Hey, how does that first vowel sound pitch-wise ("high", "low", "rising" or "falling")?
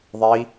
rising